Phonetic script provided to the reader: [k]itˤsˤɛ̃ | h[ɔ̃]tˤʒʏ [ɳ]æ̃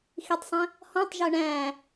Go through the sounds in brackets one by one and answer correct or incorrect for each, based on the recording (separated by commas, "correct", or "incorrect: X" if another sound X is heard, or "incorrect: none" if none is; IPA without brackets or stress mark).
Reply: incorrect: x, correct, correct